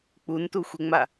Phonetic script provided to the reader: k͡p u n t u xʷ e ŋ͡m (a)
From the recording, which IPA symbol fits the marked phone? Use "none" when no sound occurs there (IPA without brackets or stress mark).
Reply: a